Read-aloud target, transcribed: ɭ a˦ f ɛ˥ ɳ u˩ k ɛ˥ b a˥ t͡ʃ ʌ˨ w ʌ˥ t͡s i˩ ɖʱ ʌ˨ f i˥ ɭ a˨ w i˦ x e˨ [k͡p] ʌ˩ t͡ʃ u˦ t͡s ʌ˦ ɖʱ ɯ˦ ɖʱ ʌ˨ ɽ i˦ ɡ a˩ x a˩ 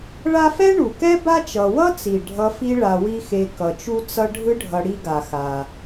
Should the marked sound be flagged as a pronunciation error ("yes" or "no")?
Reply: yes